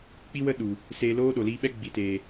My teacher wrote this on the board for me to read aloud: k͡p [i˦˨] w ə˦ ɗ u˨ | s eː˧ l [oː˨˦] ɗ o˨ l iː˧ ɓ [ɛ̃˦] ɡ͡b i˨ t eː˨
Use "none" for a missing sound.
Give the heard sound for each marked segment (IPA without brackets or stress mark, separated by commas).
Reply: i˦, oː˦, ɛ˦